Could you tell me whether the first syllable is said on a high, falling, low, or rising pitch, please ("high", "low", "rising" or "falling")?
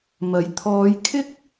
rising